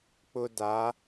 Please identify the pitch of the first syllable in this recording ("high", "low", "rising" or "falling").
high